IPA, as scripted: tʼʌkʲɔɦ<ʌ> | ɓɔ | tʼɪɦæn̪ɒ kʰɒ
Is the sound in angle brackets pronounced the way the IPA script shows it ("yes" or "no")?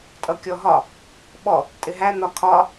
no